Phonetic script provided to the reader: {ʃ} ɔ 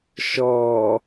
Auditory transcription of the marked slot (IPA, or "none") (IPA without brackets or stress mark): ʃ